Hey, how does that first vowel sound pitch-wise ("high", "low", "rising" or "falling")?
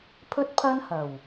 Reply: high